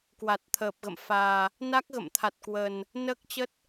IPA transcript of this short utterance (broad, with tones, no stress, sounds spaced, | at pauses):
k w a˨˩ t̚ t̪ʰ əː˨˩ p̚ ɣ ə̰˧˨ m f aː˨˩ | n a˦˥ k̚ ɣ ə̰˧˨ m t̪ʰ a˨˩ t̚ k w əː˨˩ n | n əː˦˥ k̚ t͡ɕ ə˦˥ t̚